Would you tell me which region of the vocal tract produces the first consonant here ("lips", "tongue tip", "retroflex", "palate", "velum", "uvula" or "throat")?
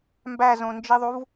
lips